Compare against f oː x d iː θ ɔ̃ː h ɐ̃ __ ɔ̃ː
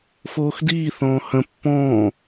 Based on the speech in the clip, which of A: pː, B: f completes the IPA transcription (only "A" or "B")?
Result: A